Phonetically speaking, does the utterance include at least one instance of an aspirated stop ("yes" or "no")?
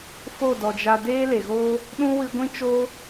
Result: no